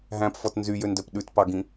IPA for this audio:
ɦ æ̃ p f ɔ t n z y j ø n d œ p ɗ ʉ t p ɑ ɡ ĩ

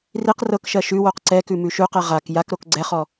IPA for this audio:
r i q r ɤ k ʃ ɜ ʃ ʉ w o q ǀ ɛ k ʉ m ʉ ʃ ʉ q ɛ ʁ a k j a k ɾ o k ɡ͡ǀ ɛ χ ɔ

